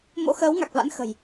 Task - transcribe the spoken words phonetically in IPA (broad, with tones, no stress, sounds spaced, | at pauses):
m o̰˧˥ x əː˨˦ w ŋ a˨˩ k̚ v a̰˧˥ n x ə̤˨˩ j